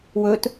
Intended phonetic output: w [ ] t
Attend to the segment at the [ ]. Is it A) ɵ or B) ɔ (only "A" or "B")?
A